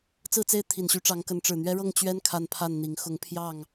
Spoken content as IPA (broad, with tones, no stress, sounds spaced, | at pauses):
t͡s ɹ̩˥˨ t͡s e˥˨ ɪ̯ t̪ʰ i˨˩ n ɕ y˨˦ ʈ͡ʂ ɑ˨˦ ŋ k ə˨˦ n ʈ͡ʂ ɻ̩˨˩ n̪ ɥ ɛ˦ ɻ ɤ˥˨ ŋ t͡ɕ ɥ ɛ˦ n kʰ a˦ n pʰ a˥˨ n n̪ i˨˦ ŋ x ʊ˨˦ ŋ pʰ j ɑ˥˨ ŋ